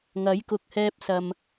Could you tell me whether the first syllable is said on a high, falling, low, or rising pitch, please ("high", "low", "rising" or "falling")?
rising